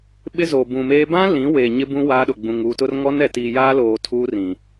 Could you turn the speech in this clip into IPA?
ɓɪ˦zoː˨ bũ˨meː˦ bã˦ lĩ˨˦ weː˨ɲɪ˦bũ˦ waː˦ɗʊ˨ɡ͡bũ˨ŋ uː˨tʊ˦r ŋɔ˦nɛ˨tiː˨ jaː˦ loː˨ tʰuː˦rĩ˨

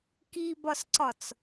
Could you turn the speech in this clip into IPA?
kibɒsǀɒt͡s

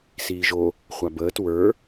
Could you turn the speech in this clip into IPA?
siːʒo | χʷabəːt wə˞

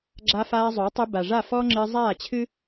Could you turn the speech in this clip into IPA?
ɡ͡ǁa˧faː˧zˤo˨˦tˤɨ˧ ba˨ʐa˦˨fɔː˦ ŋ͡ǁɨː˧zˤaː˦˨t͡ɕʰɨ˦

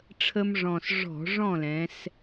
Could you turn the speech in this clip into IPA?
ʈ͡ʂʰə˦mʐɔ̃˨˩s ʐɔ̤˧˩˧ ʐɔ̃˥˨lɛ̃˩˧s

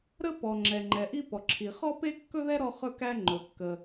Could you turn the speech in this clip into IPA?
ɾə˥pɔ˩ ŋ͡ǁɛ˩ŋ͡ǃɛ˩ʔi˥ pɔ˩ǁʰi˩ χɔ˥pe˥kːɵ˥ðɛ˥ ɾɔ˥χɵ˥kæ˥ ŋ͡ǃɵ˩kːə˩

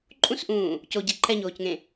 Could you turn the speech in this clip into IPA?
ǃʼũsʔũː | coɟe ǃʰɛɲoːcŋẽ

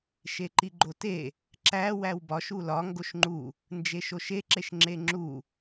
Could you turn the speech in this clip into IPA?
ʃeǃiɡ͡ǃote | ǁæ wæwbɒʃ ulɒ ŋɡoʃŋ͡ǃu | nd͡ʒeʃoʃe ǁeʃŋ͡ǁeŋ͡ǁu

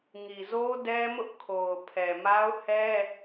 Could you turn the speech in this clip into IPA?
ŋi˨zo˦dɛ˦mʊ˦ʔ kʰo˨ʊ̯pʰɛ˨ ma˦ʊ̯hɛ˦

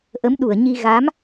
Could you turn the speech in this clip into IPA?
ʔə˨˦mɗu˧˩ə̯ɲi˧ ɣa˨˦m

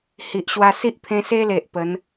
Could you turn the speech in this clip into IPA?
hi˨ʔɕwa˧si˦ʔpʰẽ˧ se˦le˨ʔ pə˨˦n

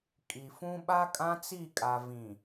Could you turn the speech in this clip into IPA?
kʼi˨fũ˦ ɓa˦kʼã˦t͡si˦˨kʼa˨ vĩ˨

